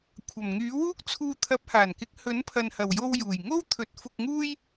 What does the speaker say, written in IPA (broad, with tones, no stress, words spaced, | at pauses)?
kʷʰɐ˨˩mŋyː˨˥ wuː˥k̚t͡sʰuː˧ t̪ʰɐ˨˥p̚haː˨˩nkɪ˨˥k̚ hɵ˨˥npʰɐ˨nhɐ˨˩wjo˧w juː˨˩j ŋo˥wt̪ʰɵ˨˥t̚fʊ˧k̚ ŋuː˥j